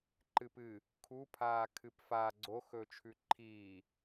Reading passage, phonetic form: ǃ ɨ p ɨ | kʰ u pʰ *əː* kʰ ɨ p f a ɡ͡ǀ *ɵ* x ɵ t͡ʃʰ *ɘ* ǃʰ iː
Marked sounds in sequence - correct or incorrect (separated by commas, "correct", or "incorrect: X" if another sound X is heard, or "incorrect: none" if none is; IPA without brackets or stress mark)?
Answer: incorrect: aː, incorrect: o, incorrect: ʉ